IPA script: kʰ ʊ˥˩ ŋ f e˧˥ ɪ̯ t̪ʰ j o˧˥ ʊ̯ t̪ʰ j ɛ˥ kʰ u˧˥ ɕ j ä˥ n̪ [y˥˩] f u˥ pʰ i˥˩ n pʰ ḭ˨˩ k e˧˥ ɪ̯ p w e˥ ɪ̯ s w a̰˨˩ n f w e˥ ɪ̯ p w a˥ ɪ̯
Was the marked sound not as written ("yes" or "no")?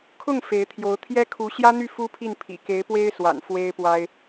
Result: no